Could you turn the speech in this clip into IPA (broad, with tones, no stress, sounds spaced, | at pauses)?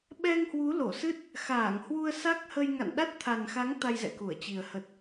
ɓ ɛ˧ ŋ h w u˨˦ l o˧˩ s ɨ˦˥ t̚ | x aː˧˩ ŋ h w u˧ ə̯ s a˦˥ k̚ h ə˧ j ŋ a̰˧˨ n ɗ a˦˥ t̚ t̪ʰ a˨˩ n x a˨˦ ŋ t̪ a˧ j z ɛ̰˧˨ k u˧˩ ə̯ t͡ɕ i˨˩ ə̯ h ə˨˩ t̚